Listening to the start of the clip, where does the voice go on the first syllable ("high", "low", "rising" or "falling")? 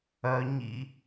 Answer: low